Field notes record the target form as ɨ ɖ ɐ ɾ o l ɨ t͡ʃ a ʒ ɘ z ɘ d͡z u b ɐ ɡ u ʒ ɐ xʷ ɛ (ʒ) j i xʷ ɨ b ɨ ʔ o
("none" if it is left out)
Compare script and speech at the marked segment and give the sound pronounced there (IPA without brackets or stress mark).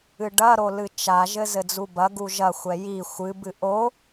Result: none